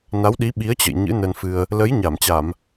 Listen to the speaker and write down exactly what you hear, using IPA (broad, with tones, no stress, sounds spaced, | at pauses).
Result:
n a˨˦ w ɗ i˨˦ ɓ i˨˦ ə̯ t͡ɕ ə̰˧˨ j ɲ ɨ̰˧˥ n ə˧ n f ɨ˧ ə̯ | l ə˨˦ j ɲ a˧˩ m t͡ɕ a˧˩˨ m